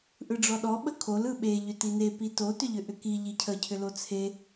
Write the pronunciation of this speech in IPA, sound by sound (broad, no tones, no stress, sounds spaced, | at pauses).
ʔ ɯ ɖ͡ʐ ɔ ɗ ɔ ɓ ə kʰ o l ɯ ɓ e ʎ ʏ t i n e p i t o t ʏ ʎ ʏ ʔ ʏ k i ʎ i cʰ ə cʰ ʏ l o t͡sʰ e